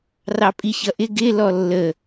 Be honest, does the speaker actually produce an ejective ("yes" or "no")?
yes